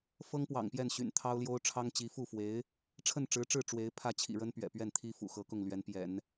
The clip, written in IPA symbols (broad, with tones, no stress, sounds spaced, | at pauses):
f ɤ˥ ŋ p w ɑ̰˨˩ ŋ p j ɛ˥˩ n ɕ y̰˨˩ n t̪ʰ ɑ˥ ʊ̯ l j o˥ ʊ̯ ʈ͡ʂʰ ɑ˥ ŋ t͡ɕ i˧˥ f u˥˩ f w e˧˥ ɪ̯ | ʈ͡ʂʰ ə˥˩ n ʈ͡ʂ ɻ̩˧˥ ʈ͡ʂ ɻ̩˥˩ ʈ͡ʂ w e˧˥ ɪ̯ pʰ ä˥˩ t͡ɕʰ ḭ˨˩ ɻ ə˥ n p ɥ ɛ̰˨˩ p ɥ ɛ˥˩ n t̪ʰ i˥ f ṵ˨˩ x ɤ˧˥ k ʊ˥˩ ŋ l ɥ ɛ˧˥ n p j ɛ̰˨˩˦ n